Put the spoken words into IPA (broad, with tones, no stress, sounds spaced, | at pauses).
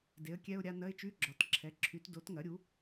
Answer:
d e˩˥ ə̯ kʲ ɛ˧˥˧ ʊ̯ ɾʲ a˧˥˧ n ɐ˧˥˧ ɪ̯ t͡ʃ y˧˥˧ ɡ͡ǁ ɒ˩˥ t ǁʰ ɛ˩˥ ǁʰ y˩˥ t d o˩˥ t ŋ ɐ˩˥ ɾʲ u˩˥